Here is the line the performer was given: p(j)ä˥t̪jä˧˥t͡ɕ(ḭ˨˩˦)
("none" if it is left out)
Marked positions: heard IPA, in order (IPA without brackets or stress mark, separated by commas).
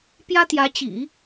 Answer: j, ḭ˨˩˦